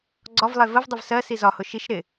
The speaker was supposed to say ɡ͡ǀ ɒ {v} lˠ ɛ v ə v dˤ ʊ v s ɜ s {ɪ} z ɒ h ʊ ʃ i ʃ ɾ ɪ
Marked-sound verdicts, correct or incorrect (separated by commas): correct, incorrect